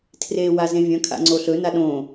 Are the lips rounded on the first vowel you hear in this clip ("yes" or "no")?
no